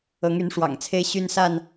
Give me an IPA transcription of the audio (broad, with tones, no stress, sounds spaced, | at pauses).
ɤ˨˦ ŋ y˨˦ n ʂ w ɑ̰˨˩ ŋ t͡sʰ e˦ ɪ̯ ɕ y˦ n s a˥˨ n